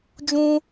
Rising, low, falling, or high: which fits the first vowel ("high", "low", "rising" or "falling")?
high